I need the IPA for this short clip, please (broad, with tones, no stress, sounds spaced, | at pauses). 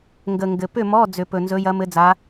ŋ ɡ ə˨˩ ŋ ɡ ɘ˨˩ p ʏ˥˨ m ɔ˧˥˧ d͡z ʏ˨˩˦ p ɵ˨˩ n z ɵ˧˥ j ɐ˧˥ m ɘ˧˥ d͡z a˧˥